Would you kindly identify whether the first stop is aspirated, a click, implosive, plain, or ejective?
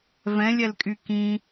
ejective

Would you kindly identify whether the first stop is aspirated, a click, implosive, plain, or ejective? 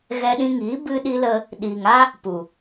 implosive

